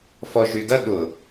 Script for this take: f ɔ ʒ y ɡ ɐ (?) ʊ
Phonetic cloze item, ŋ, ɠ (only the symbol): ɠ